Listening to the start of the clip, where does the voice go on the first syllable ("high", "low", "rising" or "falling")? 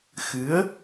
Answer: rising